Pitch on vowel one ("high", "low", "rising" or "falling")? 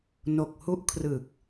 low